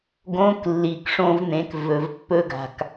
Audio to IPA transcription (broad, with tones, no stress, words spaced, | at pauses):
ɡõ˧˥k lːi˩kʂõ˧vn̪ẽ˩˧k vɵ˩vpːɵ˧ɡa̤˩k